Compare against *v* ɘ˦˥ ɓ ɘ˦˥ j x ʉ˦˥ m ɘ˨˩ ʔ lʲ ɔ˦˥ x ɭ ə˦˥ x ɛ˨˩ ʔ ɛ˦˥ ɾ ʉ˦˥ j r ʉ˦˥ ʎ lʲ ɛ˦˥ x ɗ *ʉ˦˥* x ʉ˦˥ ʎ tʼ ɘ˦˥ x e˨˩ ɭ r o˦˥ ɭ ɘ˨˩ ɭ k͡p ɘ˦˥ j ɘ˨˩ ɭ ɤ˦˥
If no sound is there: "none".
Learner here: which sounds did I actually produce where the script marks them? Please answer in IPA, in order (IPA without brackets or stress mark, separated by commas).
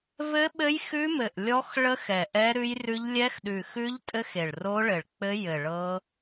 v, ʉ˨˩